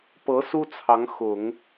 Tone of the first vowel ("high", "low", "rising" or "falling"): rising